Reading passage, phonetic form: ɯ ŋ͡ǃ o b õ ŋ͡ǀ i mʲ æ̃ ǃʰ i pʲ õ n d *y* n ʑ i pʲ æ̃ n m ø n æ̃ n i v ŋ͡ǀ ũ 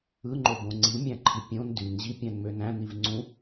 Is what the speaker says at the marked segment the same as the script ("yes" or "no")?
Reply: yes